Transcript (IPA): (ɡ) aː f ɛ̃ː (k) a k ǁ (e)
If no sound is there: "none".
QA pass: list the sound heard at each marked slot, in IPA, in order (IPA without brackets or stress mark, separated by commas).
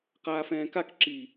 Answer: q, k, i